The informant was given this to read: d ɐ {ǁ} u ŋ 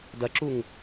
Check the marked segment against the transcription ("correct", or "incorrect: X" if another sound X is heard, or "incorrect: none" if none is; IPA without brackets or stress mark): correct